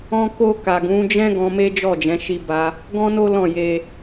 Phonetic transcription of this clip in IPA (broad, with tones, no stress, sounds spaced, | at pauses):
ɔ̃˧ k o˧ k a˨ ɡ ũ˨˦ d͡ʒ ɛ̃˦ ɡ ɔ̃˧ m e˦ d͡ʒ ɔ˦˨ d͡ʒ ɛ̃˨˦ ʃ i˦ b a˦ | ɡ ɔ̃˦ n o˦ l ɔ̃˦˨ j e˧